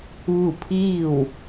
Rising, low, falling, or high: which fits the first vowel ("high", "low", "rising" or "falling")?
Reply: falling